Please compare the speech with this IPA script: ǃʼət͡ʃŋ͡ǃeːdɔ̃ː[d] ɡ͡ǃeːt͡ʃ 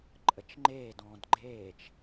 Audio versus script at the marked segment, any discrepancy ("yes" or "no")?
no